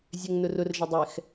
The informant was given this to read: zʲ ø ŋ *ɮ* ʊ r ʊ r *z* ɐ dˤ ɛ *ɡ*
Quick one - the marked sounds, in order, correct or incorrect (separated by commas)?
incorrect, incorrect, incorrect